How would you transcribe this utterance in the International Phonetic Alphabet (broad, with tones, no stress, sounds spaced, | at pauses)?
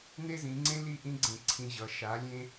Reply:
n e˥ z ĩ˩˧ ŋ͡ǀ ẽ˥ l i˥˧ ʔ ĩ˥ ɡ͡ǀ ẽ˧˩ ǀʰ ĩ˧ ʑ ʌ˩˧ ʃ a˩˧ lʲ ẽ˧